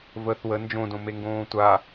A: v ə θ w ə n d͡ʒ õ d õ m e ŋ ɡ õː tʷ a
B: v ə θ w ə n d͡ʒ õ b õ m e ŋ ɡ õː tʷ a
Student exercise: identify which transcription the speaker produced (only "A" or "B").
A